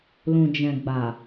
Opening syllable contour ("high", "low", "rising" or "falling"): low